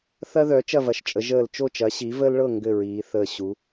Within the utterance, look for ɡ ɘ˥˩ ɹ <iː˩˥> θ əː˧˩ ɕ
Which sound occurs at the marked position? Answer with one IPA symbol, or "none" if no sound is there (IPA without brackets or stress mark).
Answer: iː˩˧